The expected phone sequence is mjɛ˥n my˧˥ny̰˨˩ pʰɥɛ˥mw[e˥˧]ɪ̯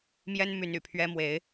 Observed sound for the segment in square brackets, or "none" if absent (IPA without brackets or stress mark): e˧˥